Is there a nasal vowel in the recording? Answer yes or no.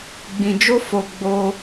yes